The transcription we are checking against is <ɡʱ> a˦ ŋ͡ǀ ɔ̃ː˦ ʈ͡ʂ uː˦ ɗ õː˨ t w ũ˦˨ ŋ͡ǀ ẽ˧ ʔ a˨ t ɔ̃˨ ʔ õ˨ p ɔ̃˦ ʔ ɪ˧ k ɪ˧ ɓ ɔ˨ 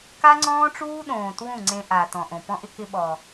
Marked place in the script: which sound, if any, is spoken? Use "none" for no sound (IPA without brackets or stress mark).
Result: k